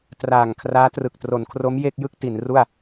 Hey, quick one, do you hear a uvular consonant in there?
no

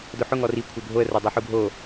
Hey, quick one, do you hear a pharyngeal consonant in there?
yes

